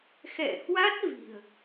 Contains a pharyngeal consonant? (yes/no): no